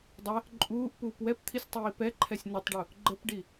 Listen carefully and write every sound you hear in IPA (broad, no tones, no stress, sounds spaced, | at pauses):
dˤ ɛ | ǃʼ uː ʔ p uː p w ɛ p t̪ʰ i sʲ tˤ iː p ɛ ǃʰ ɛ sʲ n ə tˤ ɖ u | ɡ͡ǃ ə p ɖ i